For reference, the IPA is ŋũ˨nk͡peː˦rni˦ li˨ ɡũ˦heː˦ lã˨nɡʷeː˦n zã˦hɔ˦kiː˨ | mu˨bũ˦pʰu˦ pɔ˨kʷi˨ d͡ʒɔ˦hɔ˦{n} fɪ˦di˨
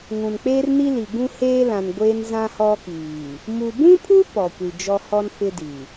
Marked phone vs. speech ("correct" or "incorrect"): correct